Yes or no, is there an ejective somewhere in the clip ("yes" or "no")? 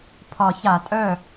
yes